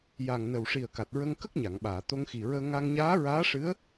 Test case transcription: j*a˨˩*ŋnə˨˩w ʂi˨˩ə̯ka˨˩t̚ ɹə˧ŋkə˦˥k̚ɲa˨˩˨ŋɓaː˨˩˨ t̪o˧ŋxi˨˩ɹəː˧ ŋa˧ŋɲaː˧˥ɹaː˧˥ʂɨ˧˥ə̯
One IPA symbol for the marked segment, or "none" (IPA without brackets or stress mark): a˨˩